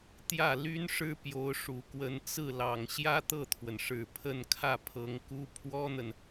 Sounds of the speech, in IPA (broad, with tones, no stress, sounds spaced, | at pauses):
t̪ j ä˥˩ l y˥ n ʂ ɻ̩˥ p j o˧˥ ʊ̯ ʂ u˨˩ k w ə˧˥ n t͡s ɹ̩˥˩ l ɑ˨˩ ŋ ɕ j ä˥ t̪ ɤ˥˩ t̪ʰ w ə˩ n ʂ ɻ̩˨˩ pʰ ə˥˧ n kʰ ä˥˩ pʰ ɤ˧˥ ŋ k u˥ pʰ w ɔ˥ n̪ ə˨ n